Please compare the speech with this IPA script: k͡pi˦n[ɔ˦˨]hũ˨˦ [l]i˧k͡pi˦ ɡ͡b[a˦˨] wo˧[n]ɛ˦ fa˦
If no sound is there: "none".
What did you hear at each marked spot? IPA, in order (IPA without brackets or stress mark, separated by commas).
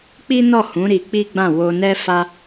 ɔ˦˨, ɾ, ã˦˨, n